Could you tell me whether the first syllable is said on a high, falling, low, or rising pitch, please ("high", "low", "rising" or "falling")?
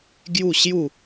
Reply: falling